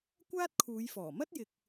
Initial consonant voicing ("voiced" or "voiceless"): voiceless